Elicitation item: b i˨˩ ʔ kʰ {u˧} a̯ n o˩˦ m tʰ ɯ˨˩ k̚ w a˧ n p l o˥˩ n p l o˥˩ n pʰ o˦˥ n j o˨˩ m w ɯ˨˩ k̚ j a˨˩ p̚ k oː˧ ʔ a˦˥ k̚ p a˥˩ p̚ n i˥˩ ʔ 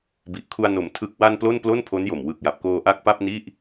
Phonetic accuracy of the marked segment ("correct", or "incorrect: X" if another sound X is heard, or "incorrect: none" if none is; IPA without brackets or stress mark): correct